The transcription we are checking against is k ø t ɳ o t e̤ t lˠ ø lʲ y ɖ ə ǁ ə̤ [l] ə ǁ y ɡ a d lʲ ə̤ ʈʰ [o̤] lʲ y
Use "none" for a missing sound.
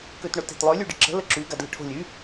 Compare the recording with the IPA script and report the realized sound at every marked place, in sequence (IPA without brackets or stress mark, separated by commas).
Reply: l, o̤